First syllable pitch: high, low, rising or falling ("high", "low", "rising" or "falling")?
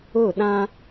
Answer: falling